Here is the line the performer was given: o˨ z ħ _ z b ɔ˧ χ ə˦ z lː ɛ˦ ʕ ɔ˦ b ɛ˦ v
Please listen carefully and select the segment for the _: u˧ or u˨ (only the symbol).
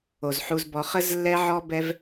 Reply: u˧